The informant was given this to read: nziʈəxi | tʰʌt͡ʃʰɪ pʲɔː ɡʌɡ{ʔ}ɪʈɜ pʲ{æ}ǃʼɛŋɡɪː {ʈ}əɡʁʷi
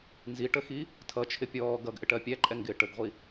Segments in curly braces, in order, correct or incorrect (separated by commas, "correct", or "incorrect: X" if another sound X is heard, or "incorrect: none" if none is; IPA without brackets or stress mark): correct, correct, correct